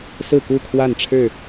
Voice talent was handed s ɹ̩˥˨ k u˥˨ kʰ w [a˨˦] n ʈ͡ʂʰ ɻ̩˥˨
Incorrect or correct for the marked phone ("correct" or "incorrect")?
incorrect